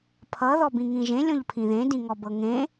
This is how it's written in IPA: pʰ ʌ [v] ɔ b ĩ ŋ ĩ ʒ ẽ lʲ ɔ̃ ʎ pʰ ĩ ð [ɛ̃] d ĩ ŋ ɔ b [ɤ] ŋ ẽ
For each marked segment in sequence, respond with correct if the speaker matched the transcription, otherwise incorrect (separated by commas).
incorrect, incorrect, correct